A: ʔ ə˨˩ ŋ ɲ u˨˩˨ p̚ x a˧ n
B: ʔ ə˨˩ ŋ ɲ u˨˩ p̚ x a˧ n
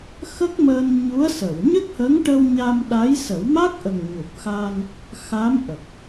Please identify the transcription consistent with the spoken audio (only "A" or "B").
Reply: B